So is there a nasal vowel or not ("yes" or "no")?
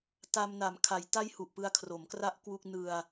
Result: no